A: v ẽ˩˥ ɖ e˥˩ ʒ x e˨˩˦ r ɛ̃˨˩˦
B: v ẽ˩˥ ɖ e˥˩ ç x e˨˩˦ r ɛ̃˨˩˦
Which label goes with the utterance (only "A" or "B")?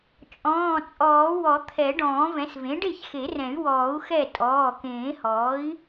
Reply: B